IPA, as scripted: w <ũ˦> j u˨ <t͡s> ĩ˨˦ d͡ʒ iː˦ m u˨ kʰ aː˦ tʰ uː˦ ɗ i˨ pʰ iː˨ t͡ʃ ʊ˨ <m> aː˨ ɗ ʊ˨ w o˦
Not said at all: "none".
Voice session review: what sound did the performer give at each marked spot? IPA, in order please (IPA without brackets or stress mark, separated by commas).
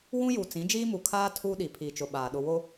ũ˦, t͡s, ɓ